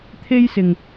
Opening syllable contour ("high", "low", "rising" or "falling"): high